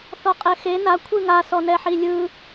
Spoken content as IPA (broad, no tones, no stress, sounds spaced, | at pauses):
θ ɔ qʼ ɛ x e n a kʷʰ ɯ ŋ a s ɔ n ɛ ħ i lʲ ɯ